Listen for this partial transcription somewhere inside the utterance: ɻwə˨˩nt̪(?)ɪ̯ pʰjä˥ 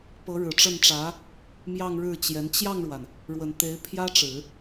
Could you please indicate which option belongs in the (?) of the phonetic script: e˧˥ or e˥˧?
e˧˥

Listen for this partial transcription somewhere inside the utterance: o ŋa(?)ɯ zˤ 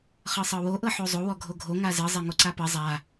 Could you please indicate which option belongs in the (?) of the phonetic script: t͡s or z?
z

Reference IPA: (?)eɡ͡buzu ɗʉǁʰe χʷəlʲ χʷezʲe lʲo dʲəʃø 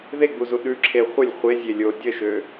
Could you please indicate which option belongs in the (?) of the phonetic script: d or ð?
ð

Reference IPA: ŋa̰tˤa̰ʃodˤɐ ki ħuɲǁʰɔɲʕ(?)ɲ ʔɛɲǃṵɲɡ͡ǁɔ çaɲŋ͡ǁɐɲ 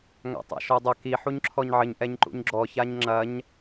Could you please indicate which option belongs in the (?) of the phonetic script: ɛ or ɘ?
ɘ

